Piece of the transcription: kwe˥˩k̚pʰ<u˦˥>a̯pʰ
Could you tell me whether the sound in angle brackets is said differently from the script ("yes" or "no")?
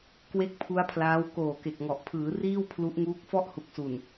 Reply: no